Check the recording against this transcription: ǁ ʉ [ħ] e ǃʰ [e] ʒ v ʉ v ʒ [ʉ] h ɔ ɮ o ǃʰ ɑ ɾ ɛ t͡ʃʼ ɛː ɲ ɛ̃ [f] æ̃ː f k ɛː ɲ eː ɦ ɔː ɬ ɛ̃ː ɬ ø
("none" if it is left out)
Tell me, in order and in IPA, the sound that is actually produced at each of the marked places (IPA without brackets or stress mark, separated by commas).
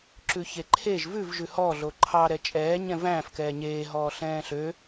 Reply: ç, e, ʉ, v